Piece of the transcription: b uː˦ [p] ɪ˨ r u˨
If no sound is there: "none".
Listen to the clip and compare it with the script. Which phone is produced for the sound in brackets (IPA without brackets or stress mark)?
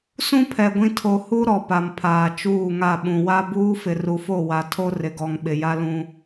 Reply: f